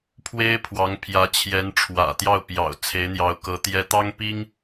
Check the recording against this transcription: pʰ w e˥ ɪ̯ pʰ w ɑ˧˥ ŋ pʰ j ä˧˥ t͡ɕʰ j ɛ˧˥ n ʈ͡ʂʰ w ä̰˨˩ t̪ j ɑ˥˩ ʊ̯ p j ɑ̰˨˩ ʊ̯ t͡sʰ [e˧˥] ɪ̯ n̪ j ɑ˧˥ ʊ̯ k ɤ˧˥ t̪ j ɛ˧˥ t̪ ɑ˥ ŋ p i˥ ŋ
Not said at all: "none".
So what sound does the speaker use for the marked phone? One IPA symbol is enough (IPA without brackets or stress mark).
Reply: e˧˥